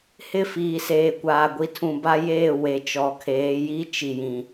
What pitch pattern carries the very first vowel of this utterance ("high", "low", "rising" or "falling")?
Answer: falling